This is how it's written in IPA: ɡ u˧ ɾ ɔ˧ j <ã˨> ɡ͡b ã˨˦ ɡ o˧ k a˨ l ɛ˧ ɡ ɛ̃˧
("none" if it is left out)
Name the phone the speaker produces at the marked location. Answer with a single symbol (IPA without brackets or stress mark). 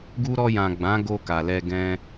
ã˨